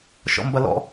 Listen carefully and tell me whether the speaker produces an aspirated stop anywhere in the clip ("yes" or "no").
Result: no